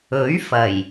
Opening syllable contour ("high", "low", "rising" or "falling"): rising